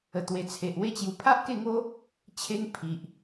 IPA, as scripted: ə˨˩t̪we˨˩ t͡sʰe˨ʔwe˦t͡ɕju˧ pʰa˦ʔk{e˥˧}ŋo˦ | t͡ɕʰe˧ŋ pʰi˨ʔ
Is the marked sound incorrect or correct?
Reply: correct